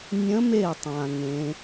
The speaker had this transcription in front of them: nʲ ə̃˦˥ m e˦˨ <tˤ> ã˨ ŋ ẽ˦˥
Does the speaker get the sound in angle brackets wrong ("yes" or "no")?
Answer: no